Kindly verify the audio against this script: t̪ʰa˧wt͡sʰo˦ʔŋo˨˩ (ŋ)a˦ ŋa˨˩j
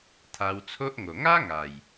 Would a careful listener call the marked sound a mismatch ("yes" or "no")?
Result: no